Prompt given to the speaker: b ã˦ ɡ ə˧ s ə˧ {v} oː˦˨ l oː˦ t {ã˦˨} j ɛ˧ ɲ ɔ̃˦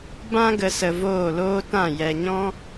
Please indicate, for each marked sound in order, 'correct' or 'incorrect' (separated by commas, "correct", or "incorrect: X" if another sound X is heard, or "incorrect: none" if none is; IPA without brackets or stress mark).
correct, correct